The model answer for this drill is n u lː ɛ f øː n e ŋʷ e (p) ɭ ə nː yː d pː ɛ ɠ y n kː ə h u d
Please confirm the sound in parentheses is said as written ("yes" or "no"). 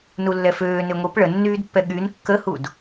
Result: yes